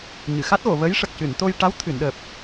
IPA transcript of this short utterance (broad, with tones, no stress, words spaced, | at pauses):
ɲɨ˨˩˨xa˦˥t̚ɣo˨˩˨və˧˥j ʂə˨˩k̚ cɨ˨˩˨nt̪o˧jʈa˧˥w t̪ʰɨ˨˩˨nɗəː˨˩p̚